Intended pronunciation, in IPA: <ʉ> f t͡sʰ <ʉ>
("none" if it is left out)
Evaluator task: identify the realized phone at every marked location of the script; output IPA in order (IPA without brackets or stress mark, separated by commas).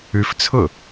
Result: ʉ, ʊ